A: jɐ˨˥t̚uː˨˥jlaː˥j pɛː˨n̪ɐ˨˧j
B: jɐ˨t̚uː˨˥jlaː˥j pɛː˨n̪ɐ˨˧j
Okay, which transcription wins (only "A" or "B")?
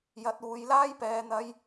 A